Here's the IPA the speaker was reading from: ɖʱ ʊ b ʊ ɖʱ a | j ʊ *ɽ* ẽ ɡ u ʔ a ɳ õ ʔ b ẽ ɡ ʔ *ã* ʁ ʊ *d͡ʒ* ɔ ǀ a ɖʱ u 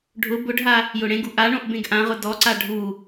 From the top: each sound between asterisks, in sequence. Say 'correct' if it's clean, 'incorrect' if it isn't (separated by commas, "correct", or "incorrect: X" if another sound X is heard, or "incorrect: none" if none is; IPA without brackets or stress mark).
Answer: correct, correct, incorrect: d